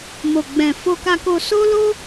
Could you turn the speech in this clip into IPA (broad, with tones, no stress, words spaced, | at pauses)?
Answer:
mo˨ɡ͡bɛ̃˨ fo˨ka˨ko˨ so˧lo˧